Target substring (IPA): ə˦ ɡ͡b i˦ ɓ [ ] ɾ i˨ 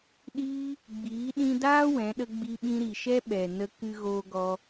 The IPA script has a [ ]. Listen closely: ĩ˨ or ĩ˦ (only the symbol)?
ĩ˦